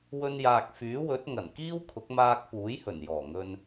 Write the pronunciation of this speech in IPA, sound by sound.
w ɵ˧ n j aː˨ k̚ f yː˨˥ w ɵ˨˥ t̚ ŋ ɐ˨˩ n k iː˥ w kʰ ʊ˨˥ k̚ m aː˧ k̚ p uː˨˥ j h ɵ˨˩ n j ɔː˨˩ ŋ ɵ˧ n

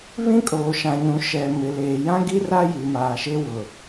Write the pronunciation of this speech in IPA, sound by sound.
β ĩ˦ kʼ oː˨ ʃ ã˨ ɲ ũ˨ ʃ ɛ˨ m ɪ˨ l eː˨ j ã˦ ɡ i˦ r a˦ j i˨ m aː˨ ʃ e˦ w ʊ˨

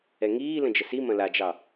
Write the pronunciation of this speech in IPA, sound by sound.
ɛ ŋ iː l ə̃ d͡ʒ ə s i m ɐ̃ l a d͡ʒ ɑ

